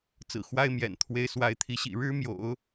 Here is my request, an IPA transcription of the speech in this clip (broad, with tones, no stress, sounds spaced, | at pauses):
t͡s ɹ̩˨˩ x w a˥ ɪ̯ m j ɛ̰˨˩ n t̪ʰ w e˧˥ ɪ̯ s w a˧˥ ɪ̯ t̪ʰ i˧˥ ɕ ḭ˨˩ ɻ ɻ̩˥ m j o̰˨˩˦ ʊ̯